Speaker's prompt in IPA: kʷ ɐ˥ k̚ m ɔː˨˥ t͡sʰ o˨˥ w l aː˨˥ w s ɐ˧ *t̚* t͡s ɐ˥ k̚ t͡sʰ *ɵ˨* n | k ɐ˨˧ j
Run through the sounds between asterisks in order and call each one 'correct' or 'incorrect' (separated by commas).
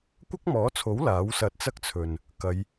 correct, correct